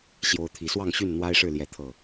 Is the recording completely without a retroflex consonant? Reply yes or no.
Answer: no